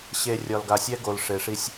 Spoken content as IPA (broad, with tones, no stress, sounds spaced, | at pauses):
ɕ e˨ rʲ ɒ˨ l ɡ a˨ sʲ ɛ˦ ɡ o˨ l ʂ e˨ ʂ i˦ sʲ